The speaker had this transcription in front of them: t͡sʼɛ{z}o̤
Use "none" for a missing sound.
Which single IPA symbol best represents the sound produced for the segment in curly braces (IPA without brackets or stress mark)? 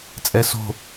s